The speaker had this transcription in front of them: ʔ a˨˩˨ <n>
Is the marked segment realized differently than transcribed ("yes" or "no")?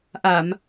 yes